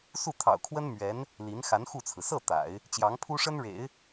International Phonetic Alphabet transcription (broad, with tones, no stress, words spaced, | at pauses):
su˥˩t̪ʰɑ̰˨˩ʊ̯kʰwə˥n mɥɛ˧˥n | li˧˥n xa˧˥nxu˥˩t͡sʰɹ̩˩ sɤ˥˩ t̪a̰˨˩˦ɪ̯ | t͡ɕjɑ˧˥ŋpʰu˥ʂə˥nɻḛ˨˩˦ɪ̯